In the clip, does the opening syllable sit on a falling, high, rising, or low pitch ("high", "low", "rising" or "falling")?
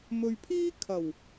low